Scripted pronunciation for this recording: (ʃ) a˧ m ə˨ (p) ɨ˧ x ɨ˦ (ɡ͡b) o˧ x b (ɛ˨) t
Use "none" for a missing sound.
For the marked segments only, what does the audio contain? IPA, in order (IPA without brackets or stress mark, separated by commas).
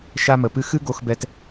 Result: ʃ, p, ɡ, ɛ˧